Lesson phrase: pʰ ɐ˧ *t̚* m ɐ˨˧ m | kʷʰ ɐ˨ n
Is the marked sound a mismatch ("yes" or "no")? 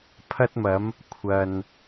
no